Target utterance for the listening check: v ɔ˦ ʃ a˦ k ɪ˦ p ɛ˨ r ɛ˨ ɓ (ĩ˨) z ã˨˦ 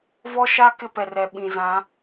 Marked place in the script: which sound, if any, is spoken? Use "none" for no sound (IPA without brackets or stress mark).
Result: ĩ˨